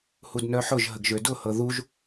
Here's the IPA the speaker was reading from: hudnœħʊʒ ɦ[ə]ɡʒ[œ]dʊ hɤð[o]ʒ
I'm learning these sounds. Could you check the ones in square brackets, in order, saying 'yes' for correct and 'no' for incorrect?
yes, no, no

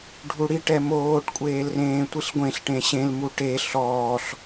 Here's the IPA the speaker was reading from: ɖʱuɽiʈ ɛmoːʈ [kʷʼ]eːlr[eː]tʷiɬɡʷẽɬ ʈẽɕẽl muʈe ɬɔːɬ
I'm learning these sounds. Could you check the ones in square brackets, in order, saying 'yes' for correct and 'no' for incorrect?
yes, no

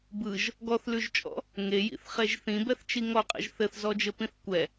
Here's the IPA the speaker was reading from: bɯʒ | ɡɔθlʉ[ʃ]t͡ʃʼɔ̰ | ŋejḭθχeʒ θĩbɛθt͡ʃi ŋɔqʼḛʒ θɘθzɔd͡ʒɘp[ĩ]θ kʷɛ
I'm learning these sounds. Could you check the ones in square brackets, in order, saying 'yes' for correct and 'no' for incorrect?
no, yes

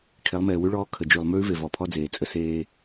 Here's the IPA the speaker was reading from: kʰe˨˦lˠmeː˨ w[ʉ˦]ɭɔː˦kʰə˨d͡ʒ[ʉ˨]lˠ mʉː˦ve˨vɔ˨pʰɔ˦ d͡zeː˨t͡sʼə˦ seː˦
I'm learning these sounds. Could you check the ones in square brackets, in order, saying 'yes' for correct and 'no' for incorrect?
yes, yes

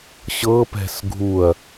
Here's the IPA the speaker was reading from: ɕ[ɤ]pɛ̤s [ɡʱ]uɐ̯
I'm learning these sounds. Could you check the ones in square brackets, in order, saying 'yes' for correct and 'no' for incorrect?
yes, yes

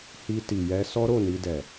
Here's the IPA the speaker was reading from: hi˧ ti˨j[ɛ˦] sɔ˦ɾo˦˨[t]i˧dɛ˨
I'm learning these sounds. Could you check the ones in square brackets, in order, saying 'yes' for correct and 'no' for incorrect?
no, no

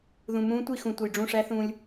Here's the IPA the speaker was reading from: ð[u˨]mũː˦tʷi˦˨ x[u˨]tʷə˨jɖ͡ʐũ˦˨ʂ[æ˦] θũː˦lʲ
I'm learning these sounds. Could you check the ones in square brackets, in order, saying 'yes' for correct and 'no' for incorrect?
no, no, yes

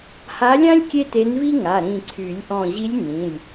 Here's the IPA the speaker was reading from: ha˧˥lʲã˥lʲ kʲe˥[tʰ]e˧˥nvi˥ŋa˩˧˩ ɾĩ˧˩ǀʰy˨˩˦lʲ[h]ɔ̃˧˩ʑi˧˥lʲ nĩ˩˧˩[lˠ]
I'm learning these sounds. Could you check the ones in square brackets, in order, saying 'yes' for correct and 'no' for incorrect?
no, no, no

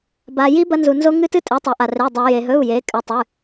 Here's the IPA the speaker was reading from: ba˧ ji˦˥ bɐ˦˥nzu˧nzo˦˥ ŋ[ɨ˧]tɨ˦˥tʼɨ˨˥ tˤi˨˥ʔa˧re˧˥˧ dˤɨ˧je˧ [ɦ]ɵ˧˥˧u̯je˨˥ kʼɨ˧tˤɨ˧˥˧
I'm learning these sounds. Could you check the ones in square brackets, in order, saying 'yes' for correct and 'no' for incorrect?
no, yes

